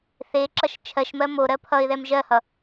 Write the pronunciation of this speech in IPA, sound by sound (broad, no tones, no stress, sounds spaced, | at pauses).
θ e ǁ ʌ ʃ t͡ʃʰ ɜ ʃ m ɜ m o ɾ ɜ pʰ ʌ ɪ̯ ð ɛ m ʒ ɜ h ʌ